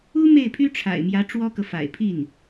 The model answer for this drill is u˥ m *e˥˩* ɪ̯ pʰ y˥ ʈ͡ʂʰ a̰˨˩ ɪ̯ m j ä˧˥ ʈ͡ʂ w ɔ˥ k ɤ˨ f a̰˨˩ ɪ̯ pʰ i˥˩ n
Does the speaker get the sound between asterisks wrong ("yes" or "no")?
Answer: no